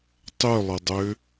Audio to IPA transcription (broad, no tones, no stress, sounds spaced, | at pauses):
tˤ ʏ lˠ ə dˤ ʏ